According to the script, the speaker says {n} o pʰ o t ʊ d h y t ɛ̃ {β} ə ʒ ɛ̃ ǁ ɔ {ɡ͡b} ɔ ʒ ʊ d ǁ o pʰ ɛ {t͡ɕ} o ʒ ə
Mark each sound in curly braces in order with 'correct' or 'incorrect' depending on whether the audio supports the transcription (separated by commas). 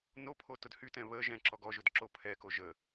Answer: correct, correct, incorrect, incorrect